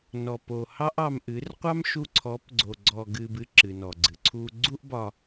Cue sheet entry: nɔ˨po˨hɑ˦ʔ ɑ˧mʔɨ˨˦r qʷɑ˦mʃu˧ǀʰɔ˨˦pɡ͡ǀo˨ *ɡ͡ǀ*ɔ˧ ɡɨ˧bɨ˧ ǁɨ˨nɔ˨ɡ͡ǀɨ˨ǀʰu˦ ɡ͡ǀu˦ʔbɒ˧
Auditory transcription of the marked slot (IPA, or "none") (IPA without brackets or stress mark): ɡ͡ǀ